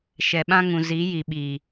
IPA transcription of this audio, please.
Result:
ʃ ɛ˨ ɓ ã˦ ŋ ũ˨ z i˨˦ j i˨ ɓ iː˨

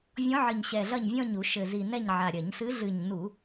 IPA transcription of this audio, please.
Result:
vʲ ɔ̃˧˥ ʕ ɨ˨˩ ɲ ɕ ɛ˨˩ ɮ ɐ˦˨ ɲ vʲ ɔ̃˦˨ ɲ u˧˩˧ ʃ ɘ˨˩ z i˨˩ n ɛ˦˨ ɲ ʕ a˨˩ ɾʲ ɐ˧˩˧ ɲ s ɨ˧˥ ɮ ɨ˨˩ ɲ n u˧˩˧

